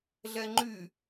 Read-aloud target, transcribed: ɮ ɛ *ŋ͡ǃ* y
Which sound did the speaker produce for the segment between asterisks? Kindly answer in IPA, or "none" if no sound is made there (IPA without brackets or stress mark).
ŋ͡ǃ